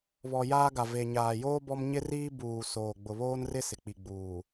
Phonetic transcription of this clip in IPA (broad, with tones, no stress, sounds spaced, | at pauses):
β ɔ˨ j aː˦ ɡ a˨ v e˨ ɲ aː˨ j oː˦ b ɔ˦ m ɲ ɪ˦ r iː˦ b uː˨ s oː˨ ɡ͡b ʊ˨ β oː˦ n r ɪ˦ s ɪ˨ k͡p i˨ ɡ͡b uː˨